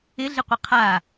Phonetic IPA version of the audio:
ɪ ɮ ɪ qʷ ɪ qʰ a

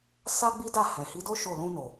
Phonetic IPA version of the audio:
s a˦ ɡ͡b i˦ d a˦˨ h ɛ̃˨ h i˨˦ d o˦ ʃ o˦˨ l ũ˧ n o˨

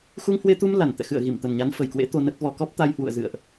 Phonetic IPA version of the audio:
x u˧ ŋ h w e˧ t̪ u˧ m l a˧˩ n t̪ ɛ̰˧˨ x ɨ̰˧˨ ə̯ ɣ i˧˩ m t̪ ə˨˩ n ɲ a˨˦ n f ə˨˩ j k w ḛ˧˥ t̪ o˧ n ə˦˥ t̚ v ɔ˧ k ɔ˦˥ p̚ t̪ a˧ j h w ṵ˧˨ ə̯ z ɨ̰˧˨ ə̯ ʔ

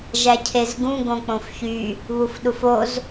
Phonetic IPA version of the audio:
ʒ æ cʰ e z ɡ ũ ɡ õ k͡p õ f ç y | β u f ɗ u f o z

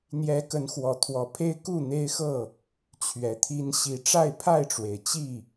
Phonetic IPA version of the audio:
n̪ j ɛ˨˦ k ə˨˦ n x w ɔ˨˩ t̪ʰ w ɔ˨˦ pʰ e˦ ɪ̯ k u˥˨ n̪ e˦ ɪ̯ x ɤ˥˨ | t͡ɕʰ ɥ ɛ˨˦ t̪ʰ i˦ n ɕ i˨˩ ʈ͡ʂ a˥˨ ɪ̯ pʰ a˥˨ ɪ̯ ʈ͡ʂ w e˩ ɪ̯ t͡ɕ i˥˨

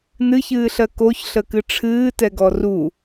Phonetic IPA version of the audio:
n ɨ ç ɨː ɬ ɜ k o ç ɬ ə k ɨ ʈ͡ʂʰ ɨː t ɛ ɡ ɔ r u

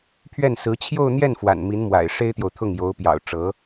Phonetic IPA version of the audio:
pʰ ɥ ɛ˥˩ n s ɹ̩˧˥ t͡ɕʰ j o˥˧ ʊ̯ n̪ j ɛ˥˩ n f w a̰˨˩ n m i˧˥ n m w a̰˨˩ ɪ̯ ʂ e˥ ɪ̯ t̪ j o˨ ʊ̯ t̪ʰ ʊ˥˩ ŋ j o˧˥ ʊ̯ p j ɑ̰˨˩ ʊ̯ ʈ͡ʂ ɤ˧˥

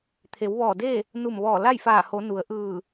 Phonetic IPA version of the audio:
t̪ʰ e˩˧ w ʋ ɔː˧˩ d e˥˨ | n u˧˩ m ʋ ɔː˧˩ l a˥˨ j f aː˧˩ h o˩˧ n u˩˧ ə̯ ʔ ɯː˧˩

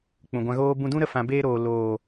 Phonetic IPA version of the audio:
k͡p ũ˨ ɡʷ ã˧ ɣ oː˦ b ũ˧ d ũ˦ ɾ ə˧ f ã˨ b eː˧ ɾ oː˨ l oː˨

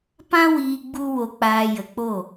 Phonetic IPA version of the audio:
p ã˦ w iː˧ ɡ͡b u˦ w o˧ k͡p aː˧ j ə˨ k͡p o˦˨

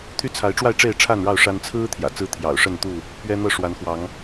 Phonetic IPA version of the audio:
t̪ʰ y˦ t͡sʰ a˨˦ ɪ̯ ʈ͡ʂ w a˥˨ ɪ̯ ʈ͡ʂ e˥˨ ɪ̯ ʈ͡ʂʰ a˥˨ n ɻ ɑ˥˨ ʊ̯ ʂ a˦ n t͡sʰ ɹ̩˦ t̪ʰ j ä̰˨˩ t͡s ɹ̩˦ t̪ʰ j ɑ̰˨˩ ʊ̯ ʂ ə˥˨ n t̪ u˥˨ | p ɥ ɛ˦ n̪ ɤ˥˨ ʂ w a˨˦ n x w ɑ˨˦ ŋ

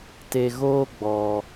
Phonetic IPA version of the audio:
t e˧ ɣ oː˦ ɡ͡b ɔ˧

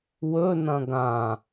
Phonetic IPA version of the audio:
w ɵ n ɐ̃ ɡ ã

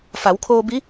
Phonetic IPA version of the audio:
f a˩˧ w kʰ oː˧ b i˧˥

